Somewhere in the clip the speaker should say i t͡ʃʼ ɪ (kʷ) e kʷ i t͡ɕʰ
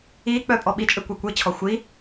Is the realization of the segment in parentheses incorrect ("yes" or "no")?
no